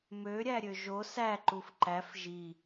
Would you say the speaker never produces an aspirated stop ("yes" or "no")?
yes